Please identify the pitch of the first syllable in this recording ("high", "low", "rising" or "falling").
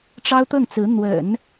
high